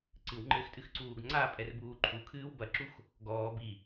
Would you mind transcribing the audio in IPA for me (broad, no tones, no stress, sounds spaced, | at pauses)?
ǀ ɨ w ŋ͡ǃ ɘː x tʼ ɨ x ǀ uː ɡ ŋ͡ǀ a pʼ ɛ r b uː ǃʰ u kʰ ɨː w b ɐ ǁ u x | ɡ ɔː b i